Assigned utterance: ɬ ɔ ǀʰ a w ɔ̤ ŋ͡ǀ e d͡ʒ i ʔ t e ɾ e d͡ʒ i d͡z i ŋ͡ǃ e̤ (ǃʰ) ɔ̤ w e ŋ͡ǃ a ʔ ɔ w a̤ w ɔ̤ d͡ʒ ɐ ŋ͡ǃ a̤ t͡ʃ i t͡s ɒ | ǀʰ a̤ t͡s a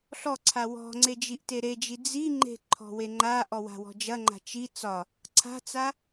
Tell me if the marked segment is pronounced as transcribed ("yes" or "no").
yes